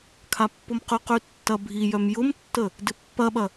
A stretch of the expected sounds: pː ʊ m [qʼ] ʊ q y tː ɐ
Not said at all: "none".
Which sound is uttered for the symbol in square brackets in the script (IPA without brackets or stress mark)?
q